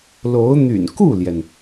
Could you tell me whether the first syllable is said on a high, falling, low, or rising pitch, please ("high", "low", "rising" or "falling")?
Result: rising